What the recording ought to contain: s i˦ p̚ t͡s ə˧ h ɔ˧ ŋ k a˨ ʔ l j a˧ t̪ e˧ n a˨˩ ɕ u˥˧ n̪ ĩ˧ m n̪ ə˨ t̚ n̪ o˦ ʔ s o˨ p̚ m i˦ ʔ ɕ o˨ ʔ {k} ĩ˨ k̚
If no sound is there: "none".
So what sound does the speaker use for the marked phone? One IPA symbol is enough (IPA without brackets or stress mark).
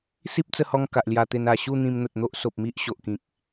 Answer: k